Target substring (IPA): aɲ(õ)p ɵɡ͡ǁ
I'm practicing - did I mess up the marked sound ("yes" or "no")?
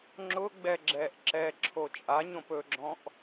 no